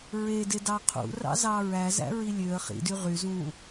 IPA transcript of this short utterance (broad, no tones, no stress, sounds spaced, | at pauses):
ɹ e d e d ɑ qʰ ṵ r ɑ̰ z ɑ ɹ æ z æ̰ ɹ i lʲ ø ə̯ χ ḭ d y ʁ y z ũ